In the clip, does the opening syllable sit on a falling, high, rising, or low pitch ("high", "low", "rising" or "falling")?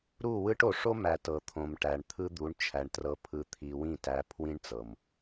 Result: falling